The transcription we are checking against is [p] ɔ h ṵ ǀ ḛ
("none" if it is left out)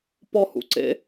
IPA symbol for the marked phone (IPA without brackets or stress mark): p